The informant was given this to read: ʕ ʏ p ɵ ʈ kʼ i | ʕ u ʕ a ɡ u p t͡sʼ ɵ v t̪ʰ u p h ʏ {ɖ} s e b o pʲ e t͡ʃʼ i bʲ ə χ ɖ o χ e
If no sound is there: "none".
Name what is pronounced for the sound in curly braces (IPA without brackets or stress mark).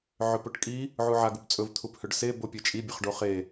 ɖ